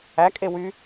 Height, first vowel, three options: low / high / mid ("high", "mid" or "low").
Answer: low